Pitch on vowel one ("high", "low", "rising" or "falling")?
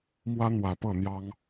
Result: high